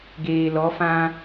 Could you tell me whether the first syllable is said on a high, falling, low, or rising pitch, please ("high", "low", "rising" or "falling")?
low